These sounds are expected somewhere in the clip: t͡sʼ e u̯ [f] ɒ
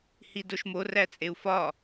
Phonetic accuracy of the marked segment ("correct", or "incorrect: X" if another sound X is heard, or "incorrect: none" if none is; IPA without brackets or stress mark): correct